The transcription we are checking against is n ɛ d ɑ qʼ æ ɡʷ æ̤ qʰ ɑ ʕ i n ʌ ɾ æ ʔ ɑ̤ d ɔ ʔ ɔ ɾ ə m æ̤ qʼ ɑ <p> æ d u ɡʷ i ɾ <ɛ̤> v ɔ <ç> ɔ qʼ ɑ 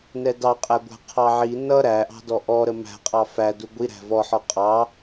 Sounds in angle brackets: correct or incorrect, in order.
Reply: incorrect, incorrect, incorrect

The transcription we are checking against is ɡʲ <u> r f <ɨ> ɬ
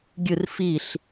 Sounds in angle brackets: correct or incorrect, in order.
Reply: incorrect, incorrect

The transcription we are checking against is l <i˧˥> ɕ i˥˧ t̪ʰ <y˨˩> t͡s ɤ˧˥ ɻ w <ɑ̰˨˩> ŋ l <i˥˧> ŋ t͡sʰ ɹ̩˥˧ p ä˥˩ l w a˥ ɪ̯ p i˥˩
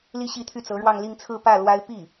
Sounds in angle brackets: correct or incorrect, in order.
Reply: incorrect, incorrect, incorrect, correct

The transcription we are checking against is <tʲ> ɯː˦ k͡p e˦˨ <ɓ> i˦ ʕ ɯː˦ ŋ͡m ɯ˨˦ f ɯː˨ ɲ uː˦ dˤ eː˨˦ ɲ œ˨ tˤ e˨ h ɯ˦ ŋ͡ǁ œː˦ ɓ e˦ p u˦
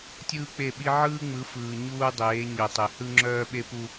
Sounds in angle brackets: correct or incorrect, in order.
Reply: correct, correct

